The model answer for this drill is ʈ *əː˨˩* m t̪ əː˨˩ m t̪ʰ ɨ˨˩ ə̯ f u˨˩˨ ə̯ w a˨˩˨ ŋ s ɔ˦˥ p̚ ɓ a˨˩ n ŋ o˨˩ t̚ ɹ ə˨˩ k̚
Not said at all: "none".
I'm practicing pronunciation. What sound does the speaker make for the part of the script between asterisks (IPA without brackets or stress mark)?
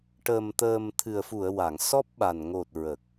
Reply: əː˨˩